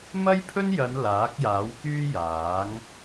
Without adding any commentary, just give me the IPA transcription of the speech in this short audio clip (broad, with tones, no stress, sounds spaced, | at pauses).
m ɐ˥ j pʰ ɵ˥ n j ɐ˨˧ n l aː˨˥ k̚ j aː˨˥ w k yː˥ j aː˨˥ ŋ